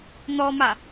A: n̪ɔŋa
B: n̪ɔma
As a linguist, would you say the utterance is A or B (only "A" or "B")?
B